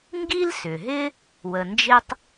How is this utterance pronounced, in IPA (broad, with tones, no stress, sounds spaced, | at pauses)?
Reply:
ŋ ɡ i˥ l s ʏ˩ ɦ ɪ˥ | w ə˩ n d͡ʒ ɪ˧ tˤ